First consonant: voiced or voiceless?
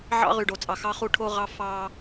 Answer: voiced